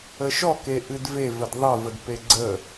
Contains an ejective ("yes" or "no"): no